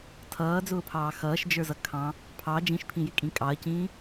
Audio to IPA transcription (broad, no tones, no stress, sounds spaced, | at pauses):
tʰ ʌː d͡z ʊː pʰ ɑː x ʌː ʃ d͡ʒ ə˞ z ʌ kʰ ɑ̃ | pʰ ɑ d͡ʒ ĩ ʃ pʰ ĩ j ɪ kʼ ĩ kʼ ɑ ɐ̯ c ĩː